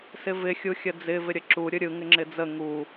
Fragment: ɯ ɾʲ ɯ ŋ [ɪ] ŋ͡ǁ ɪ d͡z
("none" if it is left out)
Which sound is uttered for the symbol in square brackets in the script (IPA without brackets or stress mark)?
ɪ